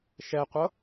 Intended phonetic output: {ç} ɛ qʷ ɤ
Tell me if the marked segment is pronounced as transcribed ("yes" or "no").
no